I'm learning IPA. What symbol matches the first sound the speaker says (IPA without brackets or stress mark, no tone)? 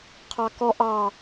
qʰ